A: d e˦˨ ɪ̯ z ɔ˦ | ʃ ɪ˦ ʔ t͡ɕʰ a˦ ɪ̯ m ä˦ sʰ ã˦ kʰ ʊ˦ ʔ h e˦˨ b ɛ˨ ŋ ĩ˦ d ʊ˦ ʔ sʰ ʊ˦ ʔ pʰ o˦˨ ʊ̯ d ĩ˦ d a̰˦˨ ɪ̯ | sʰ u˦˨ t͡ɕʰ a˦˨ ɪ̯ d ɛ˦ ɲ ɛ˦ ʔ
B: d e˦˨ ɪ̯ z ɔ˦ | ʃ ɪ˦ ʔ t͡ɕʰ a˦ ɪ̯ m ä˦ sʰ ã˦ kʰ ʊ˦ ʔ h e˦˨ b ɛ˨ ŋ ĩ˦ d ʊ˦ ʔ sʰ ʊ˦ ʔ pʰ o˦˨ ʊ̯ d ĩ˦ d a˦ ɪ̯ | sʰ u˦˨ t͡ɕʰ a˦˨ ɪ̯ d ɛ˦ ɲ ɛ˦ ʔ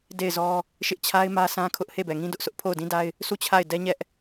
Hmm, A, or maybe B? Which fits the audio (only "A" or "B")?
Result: B